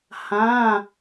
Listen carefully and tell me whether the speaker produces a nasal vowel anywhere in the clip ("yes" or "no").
yes